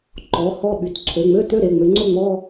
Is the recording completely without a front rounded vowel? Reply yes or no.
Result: no